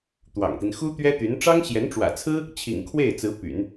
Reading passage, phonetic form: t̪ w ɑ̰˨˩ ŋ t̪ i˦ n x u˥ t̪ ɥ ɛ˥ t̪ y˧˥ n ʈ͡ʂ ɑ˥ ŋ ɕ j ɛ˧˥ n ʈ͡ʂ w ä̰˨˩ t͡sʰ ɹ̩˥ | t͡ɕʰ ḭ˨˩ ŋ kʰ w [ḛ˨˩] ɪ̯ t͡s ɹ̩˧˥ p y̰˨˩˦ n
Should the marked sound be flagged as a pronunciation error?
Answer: yes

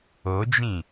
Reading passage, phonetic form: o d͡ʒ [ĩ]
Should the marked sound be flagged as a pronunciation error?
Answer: no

